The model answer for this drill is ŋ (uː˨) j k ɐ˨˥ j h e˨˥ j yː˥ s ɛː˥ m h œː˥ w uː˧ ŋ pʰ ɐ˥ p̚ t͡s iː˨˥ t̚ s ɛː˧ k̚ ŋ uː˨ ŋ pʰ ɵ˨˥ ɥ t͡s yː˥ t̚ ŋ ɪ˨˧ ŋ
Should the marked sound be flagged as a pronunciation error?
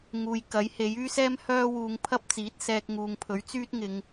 no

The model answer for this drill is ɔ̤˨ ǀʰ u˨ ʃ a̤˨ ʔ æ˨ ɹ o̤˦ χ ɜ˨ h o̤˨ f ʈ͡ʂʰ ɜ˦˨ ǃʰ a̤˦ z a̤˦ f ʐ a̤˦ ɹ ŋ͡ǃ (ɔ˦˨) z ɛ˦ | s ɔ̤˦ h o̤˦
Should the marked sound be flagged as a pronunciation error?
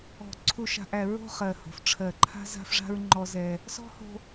yes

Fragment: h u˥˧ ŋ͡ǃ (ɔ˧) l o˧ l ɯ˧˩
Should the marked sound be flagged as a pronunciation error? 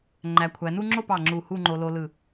yes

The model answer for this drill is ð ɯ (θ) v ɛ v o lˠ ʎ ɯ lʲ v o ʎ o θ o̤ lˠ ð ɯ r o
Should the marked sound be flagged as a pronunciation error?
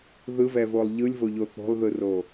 yes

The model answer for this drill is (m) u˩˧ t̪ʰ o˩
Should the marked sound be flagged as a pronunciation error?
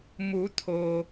no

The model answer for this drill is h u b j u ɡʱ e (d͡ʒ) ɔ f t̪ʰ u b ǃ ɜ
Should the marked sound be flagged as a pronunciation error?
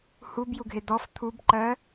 yes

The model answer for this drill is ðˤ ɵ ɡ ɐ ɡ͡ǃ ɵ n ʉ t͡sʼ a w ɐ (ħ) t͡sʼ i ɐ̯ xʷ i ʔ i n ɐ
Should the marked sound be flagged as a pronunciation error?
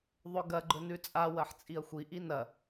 no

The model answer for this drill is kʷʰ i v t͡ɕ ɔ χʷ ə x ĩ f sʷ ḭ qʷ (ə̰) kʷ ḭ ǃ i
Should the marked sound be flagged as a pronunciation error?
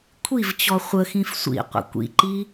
no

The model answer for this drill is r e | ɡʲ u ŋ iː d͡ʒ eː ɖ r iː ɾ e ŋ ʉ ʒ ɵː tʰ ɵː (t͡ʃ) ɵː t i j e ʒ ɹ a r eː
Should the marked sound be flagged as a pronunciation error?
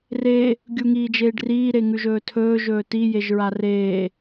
yes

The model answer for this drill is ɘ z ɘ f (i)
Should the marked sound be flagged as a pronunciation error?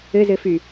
yes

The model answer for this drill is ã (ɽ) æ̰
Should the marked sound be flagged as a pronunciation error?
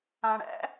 no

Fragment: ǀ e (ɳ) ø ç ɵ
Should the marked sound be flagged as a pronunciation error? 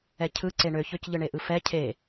no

